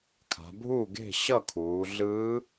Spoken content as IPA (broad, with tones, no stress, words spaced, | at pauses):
kʰa̤˩˧bʱu˥˩ɡe̤˥˩ ɕʌ˥˩kʰuː˩˧ ɮɯ˧˥